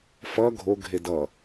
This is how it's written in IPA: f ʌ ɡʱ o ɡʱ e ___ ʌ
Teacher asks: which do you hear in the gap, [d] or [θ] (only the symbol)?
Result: d